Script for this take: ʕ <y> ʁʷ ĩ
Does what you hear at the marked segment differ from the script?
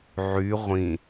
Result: no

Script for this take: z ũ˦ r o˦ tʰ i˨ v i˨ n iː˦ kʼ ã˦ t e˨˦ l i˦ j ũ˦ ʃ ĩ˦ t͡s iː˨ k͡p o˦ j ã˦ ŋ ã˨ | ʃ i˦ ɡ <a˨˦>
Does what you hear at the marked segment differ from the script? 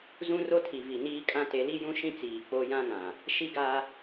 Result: yes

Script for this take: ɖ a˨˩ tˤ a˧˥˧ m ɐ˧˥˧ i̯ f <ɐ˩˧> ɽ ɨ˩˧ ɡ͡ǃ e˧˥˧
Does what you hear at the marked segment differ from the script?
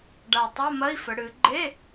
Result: yes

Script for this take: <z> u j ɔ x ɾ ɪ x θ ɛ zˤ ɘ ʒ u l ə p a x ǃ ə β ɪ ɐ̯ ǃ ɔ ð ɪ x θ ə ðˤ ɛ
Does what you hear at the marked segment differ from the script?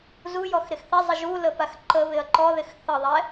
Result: no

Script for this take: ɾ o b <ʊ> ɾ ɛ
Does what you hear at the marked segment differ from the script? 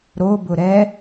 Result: no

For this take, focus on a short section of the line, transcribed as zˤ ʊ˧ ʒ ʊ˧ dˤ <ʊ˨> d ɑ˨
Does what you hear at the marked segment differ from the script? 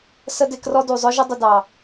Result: no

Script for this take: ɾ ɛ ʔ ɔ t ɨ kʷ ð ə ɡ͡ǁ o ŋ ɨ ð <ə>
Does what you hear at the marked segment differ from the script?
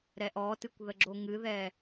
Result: yes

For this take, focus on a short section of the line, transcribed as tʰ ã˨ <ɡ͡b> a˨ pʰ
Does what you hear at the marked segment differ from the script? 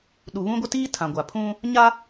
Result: yes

